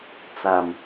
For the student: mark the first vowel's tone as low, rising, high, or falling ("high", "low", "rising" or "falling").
low